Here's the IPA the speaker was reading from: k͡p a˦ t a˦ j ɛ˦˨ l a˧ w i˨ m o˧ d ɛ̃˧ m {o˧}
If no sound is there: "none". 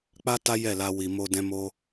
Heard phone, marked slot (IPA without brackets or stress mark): o˦